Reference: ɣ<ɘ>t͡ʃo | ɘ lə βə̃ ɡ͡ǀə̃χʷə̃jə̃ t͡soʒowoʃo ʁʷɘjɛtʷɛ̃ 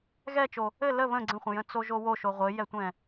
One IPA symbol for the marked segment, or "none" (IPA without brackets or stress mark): ɛ